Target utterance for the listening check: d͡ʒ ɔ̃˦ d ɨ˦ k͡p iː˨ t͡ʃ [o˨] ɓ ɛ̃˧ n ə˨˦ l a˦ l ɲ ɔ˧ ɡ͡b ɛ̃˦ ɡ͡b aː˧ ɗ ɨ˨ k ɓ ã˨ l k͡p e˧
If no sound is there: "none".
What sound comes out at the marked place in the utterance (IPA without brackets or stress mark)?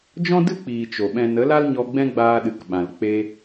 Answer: o˨